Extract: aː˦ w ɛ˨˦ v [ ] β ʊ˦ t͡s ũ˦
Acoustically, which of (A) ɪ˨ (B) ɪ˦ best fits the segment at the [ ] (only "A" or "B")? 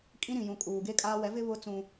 B